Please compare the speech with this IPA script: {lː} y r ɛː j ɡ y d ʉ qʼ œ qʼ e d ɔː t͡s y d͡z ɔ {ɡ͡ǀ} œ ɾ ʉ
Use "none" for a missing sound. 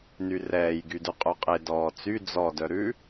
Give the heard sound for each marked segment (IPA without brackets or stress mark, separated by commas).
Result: n, d